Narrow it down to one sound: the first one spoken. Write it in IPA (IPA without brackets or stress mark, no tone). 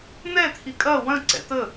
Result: n̪